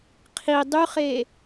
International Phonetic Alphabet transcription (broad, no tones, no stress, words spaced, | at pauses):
qʰi dˤyχe